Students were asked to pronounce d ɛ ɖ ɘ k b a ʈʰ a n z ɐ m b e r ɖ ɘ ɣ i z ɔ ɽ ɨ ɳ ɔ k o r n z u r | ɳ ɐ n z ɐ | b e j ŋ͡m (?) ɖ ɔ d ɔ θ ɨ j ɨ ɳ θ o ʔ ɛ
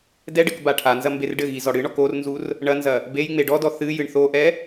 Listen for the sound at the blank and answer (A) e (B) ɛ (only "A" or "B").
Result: A